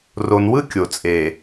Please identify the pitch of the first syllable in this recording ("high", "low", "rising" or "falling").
low